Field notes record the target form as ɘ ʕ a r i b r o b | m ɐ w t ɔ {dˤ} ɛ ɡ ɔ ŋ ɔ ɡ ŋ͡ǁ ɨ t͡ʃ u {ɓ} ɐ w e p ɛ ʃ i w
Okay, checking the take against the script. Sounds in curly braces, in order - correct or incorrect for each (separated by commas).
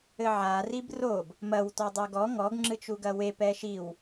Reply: correct, incorrect